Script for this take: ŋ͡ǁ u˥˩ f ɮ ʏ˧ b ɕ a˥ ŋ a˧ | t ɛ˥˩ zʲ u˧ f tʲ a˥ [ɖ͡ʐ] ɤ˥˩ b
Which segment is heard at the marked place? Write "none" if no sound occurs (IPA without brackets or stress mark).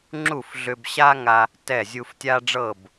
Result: ɖ͡ʐ